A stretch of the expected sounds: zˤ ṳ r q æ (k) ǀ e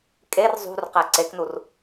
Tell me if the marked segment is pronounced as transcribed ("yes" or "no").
no